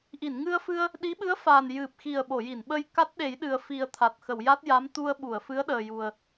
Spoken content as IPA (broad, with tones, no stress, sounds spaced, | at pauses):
ʔ i˨˩˨ n ŋ ɨ˧ ə̯ f ɨ˧ ə̯ | ɗ i˧˥ ɓ ɨ˧˥ ə̯ f aː˨˩ n j ɨ˨˩ p̚ x i˨˩ ə̯ ɓ o˨˩˨ j i˨˩˨ n ɓ ə˧ j k a˦˥ t̚ ɗ e˨˩˦ j ɗ ɨ˨˩ ə̯ f i˨˩ ə̯ t̪ʰ a˨˩ t̚ x ə˨˩˨ w j a˦˥ t̚ j a˧˥ m t̪ u˧ ə̯ ɓ u˨˩˨ ə̯ f ɨ˧˥ ə̯ ɗ əː˨˩ j u˨˩ ə̯